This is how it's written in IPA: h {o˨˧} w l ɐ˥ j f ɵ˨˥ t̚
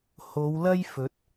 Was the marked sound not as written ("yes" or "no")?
no